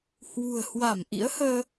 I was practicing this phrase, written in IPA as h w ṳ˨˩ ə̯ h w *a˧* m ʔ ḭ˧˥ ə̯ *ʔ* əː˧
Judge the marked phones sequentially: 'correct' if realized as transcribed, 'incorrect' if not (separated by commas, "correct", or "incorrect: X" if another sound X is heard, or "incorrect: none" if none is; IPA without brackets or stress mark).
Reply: incorrect: a˧˩, incorrect: h